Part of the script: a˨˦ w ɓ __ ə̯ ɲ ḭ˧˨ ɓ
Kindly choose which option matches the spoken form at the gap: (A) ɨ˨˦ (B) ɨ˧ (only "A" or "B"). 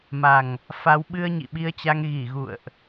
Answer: B